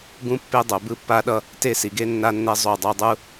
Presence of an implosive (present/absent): present